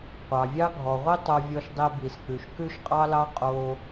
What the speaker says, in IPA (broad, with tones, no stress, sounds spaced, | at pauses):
qʷ ɑ˩ vʲ ɑ˥ ɡʱ ɔ˩ ʁʷ i˥ tˤ o˧ vʲ ɔ˧ ʃ dˤ e˧ b i˩ s k͡p ʉ˩ ʃ k ʉ˥ ʃ qʼ ɑ˥ l ɑ˥ qʼ o˧